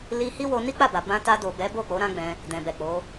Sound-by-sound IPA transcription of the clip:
l i˧ h i˦ w o˧ n i˦ k͡p a˦˨ b a˨ b ã˧ t a˧ d o˨ b ɛ˨˦ b o˦˨ k͡p o˨˦ ɾ ã˦ ɡ͡b ɛ̃˧ | d ɛ̃˨ b ɛ˨ k͡p o˨˦

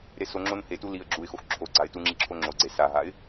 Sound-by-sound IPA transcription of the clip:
ɾ e s o ŋ͡ǁ o n h e t u l i ə̯ ɡ͡ǁ u ɪ̯ x o x ǁʰ o ɡ͡ǀ a ɪ̯ t u ŋ͡ǁ i ǁʰ o ŋ͡ǁ o ɡ͡ǀ e s a ɦ a ɪ̯

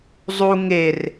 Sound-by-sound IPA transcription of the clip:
zˤ u ŋ e r

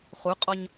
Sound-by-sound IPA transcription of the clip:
χ u qʼ ɔ ɲ

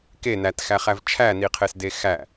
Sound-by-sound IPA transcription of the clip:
k e n æ t x æ χ æ v t͡ʃʰ æ n i qʰ e s d e x æ

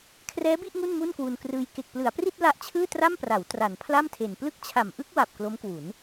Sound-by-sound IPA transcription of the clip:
kʰ r ɛː˦˥ b i˥˩ ʔ ŋ u˥˩ n m u˥˩ n k w u˧ n k r ɯː˧ j k e˨˩ k̚ p l ɯ˩˦ a̯ p r i˥˩ t̚ l a˦˥ ʔ t͡ɕʰ ɯː˥˩ t r a˥˩ m p r a˩˦ w t r a˩˦ n pʰ l a˥˩ m tʰ e˨˩ n p l ɯ˦˥ k̚ t͡ɕʰ a˨˩ m ʔ ɯ˥˩ k̚ w a˨˩ p̚ k l o˦˥ m k w u˩˦ n

